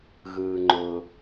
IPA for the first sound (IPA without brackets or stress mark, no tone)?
ɣ